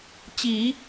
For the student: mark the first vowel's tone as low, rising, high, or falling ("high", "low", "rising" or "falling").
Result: low